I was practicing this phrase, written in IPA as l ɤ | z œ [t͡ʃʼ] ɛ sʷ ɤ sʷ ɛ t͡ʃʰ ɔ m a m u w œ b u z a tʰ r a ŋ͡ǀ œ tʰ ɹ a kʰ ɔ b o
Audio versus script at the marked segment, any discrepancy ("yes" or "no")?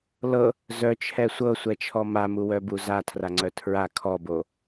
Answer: yes